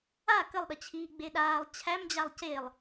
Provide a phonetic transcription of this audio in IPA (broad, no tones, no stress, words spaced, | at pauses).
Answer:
a kəlˠɗət͡ɕʰiː ɡ͡beɗaːlˠ t͡ɕʰæmd͡ʑalˠ celˠ